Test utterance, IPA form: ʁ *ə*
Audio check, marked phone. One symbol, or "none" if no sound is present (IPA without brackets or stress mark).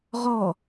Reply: ɔ